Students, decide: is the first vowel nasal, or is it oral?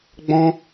nasal